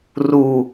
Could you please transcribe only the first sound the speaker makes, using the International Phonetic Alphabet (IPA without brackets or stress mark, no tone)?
r